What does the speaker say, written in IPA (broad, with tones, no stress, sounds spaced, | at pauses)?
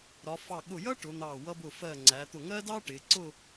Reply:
ɾ ɒ˩˧ f ɑ˧˩ ɠ ʊ˧˩ j ʌ˥ ʈ ʊ˩˧ n̪ ɑ˧˩ w ʌ˧ b ʊ˧˩ f ɜ˧˩ ŋ͡ǀ æ˩˧ t̪ ʊ˧˩ ŋ ɜ˥ d ɑ˥ ʈ ɪ˩˧ ǀ ʊ˥˧